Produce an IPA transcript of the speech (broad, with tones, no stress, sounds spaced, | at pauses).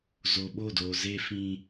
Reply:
z o˨ ɓ o˦˨ d oː˨ z eː˦ f ĩ˦